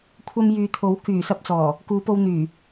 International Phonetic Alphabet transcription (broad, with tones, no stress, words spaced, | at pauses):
kʷʰɐ˧mjyː˨t̪ʰo˨˥w kyː˨˩sɐ˧p̚t͡sɔː˨˩ | kuː˨˧po˧w n̪yː˨˩